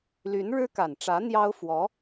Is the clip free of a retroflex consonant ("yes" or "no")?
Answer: no